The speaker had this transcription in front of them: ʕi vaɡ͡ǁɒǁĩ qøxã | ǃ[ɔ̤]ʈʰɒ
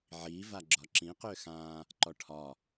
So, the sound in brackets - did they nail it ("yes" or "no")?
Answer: no